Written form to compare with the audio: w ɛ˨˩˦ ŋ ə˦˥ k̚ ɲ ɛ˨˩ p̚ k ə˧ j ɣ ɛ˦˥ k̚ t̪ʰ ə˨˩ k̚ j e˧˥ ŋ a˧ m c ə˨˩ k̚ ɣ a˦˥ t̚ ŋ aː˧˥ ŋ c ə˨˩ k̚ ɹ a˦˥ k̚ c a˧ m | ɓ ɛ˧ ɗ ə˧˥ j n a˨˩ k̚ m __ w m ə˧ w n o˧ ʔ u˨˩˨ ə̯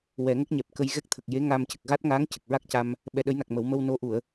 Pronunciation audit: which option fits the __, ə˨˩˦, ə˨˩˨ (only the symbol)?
ə˨˩˦